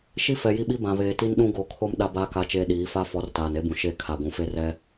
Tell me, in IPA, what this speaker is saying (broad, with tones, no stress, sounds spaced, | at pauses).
ʃ i˦ f ɛ˨ j i˦ ɓ i˦ b ã˨ β eː˨ t i˦ n ɗ ũ˦ ɡ o˨ kʰ o˦ m ɗ a˦ b aː˦ k a˦ t͡ʃ eː˦ ɗ iː˨˦ f a˦ f ɔ˨˦ r t aː˨ n e˦ b ũ˨ ʃ e˦˨ kʰ a˨ ɡʷ ũ˨ f e˦ r ɛ˦